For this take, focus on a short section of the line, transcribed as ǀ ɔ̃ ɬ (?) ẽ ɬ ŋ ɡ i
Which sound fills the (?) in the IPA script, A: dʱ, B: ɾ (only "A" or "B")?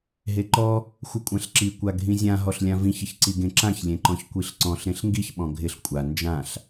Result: B